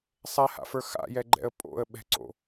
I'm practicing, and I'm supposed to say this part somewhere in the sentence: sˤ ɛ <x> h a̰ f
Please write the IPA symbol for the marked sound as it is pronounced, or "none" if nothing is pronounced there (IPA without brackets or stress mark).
none